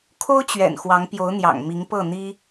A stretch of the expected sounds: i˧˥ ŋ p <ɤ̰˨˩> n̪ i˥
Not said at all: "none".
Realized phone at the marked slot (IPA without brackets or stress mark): ɤ˥˩